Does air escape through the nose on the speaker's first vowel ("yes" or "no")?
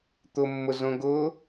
no